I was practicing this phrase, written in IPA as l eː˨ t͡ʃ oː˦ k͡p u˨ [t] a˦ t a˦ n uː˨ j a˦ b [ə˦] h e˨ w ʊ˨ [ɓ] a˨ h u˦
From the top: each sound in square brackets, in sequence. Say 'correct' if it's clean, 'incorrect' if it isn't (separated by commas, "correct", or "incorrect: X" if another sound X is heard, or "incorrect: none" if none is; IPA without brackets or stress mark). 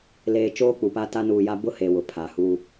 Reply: incorrect: p, incorrect: ʊ˦, incorrect: pʰ